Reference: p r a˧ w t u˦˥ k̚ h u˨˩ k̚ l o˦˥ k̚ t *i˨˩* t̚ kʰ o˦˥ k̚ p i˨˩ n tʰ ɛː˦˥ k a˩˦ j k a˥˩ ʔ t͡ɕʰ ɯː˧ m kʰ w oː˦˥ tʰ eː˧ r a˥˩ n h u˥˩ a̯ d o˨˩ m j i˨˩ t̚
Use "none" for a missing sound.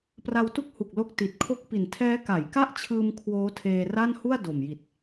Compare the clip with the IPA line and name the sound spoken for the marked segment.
i˨˩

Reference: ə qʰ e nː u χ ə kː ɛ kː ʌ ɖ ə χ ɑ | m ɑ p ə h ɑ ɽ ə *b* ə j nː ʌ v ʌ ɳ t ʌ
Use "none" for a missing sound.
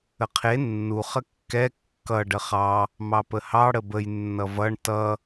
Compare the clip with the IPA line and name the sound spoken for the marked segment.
b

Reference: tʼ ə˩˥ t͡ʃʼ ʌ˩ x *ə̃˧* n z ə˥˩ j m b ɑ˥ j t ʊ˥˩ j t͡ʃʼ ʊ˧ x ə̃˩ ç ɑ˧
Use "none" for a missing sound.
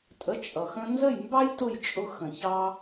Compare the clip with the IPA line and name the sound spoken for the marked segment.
ə̃˧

